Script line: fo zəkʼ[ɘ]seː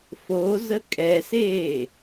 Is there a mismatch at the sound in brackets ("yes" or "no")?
yes